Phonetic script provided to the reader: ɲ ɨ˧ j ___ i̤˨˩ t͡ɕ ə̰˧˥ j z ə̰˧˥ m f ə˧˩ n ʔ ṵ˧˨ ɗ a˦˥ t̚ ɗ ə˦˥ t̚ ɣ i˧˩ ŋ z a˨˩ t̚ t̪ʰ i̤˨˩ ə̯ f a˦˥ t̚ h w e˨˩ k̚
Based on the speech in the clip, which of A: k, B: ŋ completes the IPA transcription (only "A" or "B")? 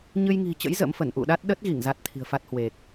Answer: B